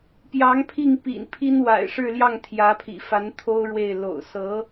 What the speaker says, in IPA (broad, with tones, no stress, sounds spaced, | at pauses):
p j ɑ˧˥ ŋ pʰ i˥˩ ŋ p ḭ˨˩ n pʰ i˥ n w a̰˨˩ ɪ̯ ʂ ɻ̩˥˧ l j ɑ˥˩ ŋ t̪ʰ j ä˧˥ pʰ ḭ˨˩ f a˧˥ n t̪ʰ o˥ ʊ̯ ɻ w e˥˩ ɪ̯ l o̰˨˩ ʊ̯ s ɤ˧˥